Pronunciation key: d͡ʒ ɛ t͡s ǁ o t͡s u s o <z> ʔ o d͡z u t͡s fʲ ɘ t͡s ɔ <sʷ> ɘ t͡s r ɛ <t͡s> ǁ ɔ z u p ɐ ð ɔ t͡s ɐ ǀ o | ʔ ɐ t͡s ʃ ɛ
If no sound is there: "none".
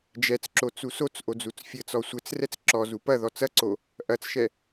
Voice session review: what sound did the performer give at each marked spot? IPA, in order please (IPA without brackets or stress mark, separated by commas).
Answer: t͡s, sʷ, t͡s